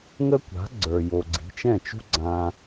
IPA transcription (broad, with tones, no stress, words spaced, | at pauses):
ŋə˥kʷa̤˩˥ ɡ͡ǀə˞˩ jo˩ɡ͡ǀi̤˩˥t͡ʃɛ̃˥˩t͡ʃṳ˥ ɡ͡ǀã˧